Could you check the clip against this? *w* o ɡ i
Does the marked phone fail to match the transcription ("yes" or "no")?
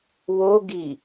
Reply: no